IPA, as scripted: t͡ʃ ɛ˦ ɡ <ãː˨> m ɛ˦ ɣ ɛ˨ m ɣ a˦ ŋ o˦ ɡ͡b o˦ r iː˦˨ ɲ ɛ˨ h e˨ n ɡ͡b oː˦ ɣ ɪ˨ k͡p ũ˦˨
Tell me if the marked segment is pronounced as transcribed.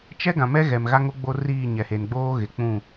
no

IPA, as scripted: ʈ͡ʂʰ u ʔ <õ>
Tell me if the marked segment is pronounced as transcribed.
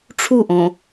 yes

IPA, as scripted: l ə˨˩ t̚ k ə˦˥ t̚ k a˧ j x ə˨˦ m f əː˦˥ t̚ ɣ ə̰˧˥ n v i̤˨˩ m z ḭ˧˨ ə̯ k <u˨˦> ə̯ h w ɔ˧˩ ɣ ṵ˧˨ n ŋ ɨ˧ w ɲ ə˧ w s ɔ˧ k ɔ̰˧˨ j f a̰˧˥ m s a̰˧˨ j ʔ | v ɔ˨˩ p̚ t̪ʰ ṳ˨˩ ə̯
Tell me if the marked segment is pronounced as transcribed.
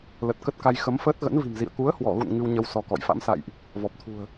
yes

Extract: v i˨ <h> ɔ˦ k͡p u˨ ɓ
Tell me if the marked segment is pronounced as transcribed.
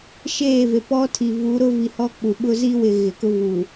yes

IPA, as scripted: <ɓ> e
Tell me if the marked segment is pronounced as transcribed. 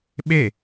yes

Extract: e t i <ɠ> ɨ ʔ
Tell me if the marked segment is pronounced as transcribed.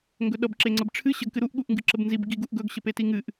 no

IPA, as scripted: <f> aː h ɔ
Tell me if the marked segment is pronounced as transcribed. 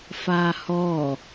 yes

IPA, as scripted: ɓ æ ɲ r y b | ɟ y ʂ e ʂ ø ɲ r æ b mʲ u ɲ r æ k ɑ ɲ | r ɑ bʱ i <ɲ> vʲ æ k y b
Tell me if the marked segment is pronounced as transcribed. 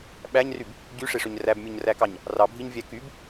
yes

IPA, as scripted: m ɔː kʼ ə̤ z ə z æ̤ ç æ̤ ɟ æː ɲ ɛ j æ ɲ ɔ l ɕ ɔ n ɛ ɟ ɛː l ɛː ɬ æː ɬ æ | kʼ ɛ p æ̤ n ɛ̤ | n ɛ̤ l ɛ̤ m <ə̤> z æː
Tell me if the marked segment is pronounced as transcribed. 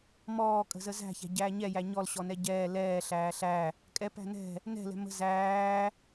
yes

